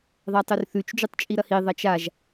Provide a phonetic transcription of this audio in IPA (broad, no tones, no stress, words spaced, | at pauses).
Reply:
ðˤatˤɵrθʉt͡ʃ d͡ʒutˤt͡ʃʼiɾɐhi ðˤɐt͡ʃaʒ